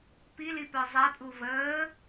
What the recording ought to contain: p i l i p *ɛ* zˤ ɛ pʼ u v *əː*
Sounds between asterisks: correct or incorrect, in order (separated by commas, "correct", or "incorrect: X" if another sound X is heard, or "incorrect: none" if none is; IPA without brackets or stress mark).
incorrect: œ, correct